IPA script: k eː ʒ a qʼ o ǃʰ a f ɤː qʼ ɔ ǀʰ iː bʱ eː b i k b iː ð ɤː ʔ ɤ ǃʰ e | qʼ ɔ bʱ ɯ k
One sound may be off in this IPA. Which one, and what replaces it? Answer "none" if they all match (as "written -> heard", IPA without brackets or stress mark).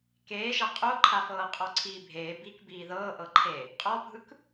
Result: none